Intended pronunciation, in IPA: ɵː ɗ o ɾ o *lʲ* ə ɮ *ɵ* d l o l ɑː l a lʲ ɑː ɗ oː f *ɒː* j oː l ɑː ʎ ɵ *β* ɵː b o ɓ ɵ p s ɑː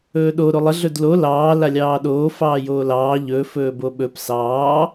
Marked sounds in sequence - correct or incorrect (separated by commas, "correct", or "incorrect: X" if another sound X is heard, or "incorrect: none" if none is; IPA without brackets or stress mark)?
incorrect: lˠ, correct, incorrect: ɑː, incorrect: f